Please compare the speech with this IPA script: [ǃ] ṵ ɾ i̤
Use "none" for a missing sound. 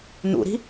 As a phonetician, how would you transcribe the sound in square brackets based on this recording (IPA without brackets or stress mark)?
n